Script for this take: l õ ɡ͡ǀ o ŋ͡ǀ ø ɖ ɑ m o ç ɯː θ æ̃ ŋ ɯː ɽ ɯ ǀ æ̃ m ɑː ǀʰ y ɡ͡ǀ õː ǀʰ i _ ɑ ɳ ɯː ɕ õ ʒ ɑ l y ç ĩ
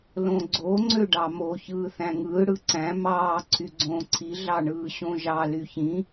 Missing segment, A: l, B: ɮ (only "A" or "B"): B